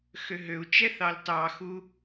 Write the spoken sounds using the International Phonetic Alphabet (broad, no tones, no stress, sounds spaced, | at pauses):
x ø ɦ ø u̯ t͡ʃ ɛ θ ɑ l t ɑ x u